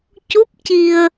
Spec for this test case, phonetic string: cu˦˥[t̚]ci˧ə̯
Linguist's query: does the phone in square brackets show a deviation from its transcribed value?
yes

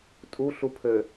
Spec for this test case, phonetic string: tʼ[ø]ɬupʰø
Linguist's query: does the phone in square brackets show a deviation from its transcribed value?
yes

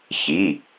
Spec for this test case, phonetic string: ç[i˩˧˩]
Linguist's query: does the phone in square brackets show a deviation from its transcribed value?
no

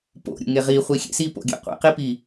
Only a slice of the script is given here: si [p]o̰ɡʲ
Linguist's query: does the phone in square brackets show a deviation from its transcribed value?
no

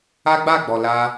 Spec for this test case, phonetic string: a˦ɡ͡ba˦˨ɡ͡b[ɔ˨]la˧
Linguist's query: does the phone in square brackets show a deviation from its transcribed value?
no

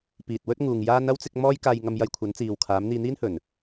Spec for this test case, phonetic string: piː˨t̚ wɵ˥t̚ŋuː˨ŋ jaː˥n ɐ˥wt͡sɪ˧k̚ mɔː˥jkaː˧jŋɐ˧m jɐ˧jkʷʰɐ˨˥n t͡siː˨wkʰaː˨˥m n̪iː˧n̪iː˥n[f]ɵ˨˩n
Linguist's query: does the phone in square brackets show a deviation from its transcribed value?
yes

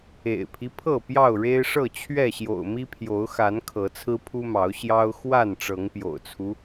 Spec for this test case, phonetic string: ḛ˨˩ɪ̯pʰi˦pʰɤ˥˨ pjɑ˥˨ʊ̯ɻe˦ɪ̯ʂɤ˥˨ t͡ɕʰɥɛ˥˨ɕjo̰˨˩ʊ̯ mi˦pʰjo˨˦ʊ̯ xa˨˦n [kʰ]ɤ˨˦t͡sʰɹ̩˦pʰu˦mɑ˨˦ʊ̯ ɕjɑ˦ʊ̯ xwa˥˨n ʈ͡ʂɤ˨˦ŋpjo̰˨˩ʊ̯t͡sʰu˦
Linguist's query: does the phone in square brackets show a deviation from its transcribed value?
no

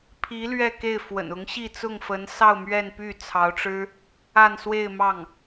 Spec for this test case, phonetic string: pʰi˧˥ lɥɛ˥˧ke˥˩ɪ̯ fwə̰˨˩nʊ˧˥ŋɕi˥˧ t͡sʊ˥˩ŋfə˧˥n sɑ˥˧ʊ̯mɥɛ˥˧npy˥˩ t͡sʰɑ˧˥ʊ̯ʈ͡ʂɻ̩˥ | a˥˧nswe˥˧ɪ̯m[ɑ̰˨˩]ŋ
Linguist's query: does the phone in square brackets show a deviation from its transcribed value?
yes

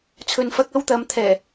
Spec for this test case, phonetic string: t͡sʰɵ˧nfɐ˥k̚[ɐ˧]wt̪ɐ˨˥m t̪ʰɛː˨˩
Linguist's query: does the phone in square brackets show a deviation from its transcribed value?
yes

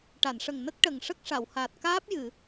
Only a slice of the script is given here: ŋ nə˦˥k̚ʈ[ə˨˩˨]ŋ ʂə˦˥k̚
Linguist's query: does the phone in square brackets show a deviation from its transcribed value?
yes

